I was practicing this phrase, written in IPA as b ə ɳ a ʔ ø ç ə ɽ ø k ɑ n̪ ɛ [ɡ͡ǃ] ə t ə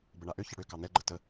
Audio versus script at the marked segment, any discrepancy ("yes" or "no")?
no